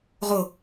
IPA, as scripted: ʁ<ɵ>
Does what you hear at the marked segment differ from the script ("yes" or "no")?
yes